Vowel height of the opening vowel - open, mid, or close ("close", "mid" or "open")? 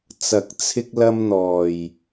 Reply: open